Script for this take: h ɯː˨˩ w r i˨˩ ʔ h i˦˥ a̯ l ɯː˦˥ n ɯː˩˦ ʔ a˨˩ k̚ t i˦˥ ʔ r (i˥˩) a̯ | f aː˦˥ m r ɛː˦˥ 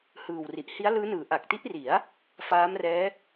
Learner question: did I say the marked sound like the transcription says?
no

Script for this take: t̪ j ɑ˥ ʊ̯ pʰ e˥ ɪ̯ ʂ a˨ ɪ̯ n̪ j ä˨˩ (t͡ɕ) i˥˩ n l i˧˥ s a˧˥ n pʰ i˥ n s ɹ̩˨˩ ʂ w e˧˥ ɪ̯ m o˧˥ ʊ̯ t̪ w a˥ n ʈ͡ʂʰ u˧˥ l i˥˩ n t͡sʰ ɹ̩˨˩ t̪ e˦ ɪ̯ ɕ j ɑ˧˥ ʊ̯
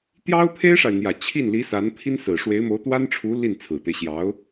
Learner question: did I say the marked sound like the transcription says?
no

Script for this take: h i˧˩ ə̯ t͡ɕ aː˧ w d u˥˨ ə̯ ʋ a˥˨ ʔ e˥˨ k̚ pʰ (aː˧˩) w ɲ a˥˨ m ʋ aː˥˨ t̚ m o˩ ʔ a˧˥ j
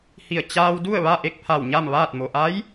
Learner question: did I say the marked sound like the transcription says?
no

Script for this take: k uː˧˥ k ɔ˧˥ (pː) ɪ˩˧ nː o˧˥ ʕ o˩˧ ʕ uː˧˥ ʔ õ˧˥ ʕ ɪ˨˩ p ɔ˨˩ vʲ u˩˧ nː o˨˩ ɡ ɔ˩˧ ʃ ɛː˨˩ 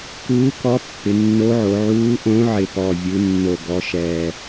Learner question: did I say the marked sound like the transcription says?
yes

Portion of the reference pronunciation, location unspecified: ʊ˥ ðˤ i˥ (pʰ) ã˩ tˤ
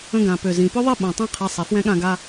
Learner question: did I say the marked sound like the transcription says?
no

